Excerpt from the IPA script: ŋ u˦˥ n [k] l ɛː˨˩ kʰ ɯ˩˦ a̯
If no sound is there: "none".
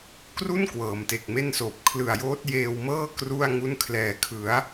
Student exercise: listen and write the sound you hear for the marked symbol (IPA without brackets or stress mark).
kʰ